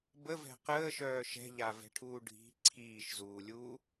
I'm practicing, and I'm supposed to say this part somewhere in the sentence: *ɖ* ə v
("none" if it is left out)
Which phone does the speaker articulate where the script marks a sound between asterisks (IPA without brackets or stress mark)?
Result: b